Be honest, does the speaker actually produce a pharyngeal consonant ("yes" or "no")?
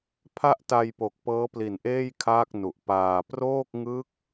no